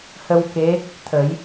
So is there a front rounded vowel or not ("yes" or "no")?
no